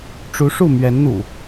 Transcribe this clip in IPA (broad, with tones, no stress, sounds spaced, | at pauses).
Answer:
ʈ͡ʂ u˨˦ ʂ u˥˨ m ɥ ɛ˨˦ n n̪ ṵ˨˩